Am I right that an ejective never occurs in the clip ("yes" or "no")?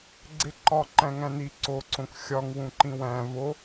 yes